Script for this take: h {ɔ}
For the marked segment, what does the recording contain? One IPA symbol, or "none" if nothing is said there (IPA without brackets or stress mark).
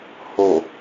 o